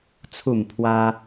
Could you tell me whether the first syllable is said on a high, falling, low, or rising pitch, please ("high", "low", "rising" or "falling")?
falling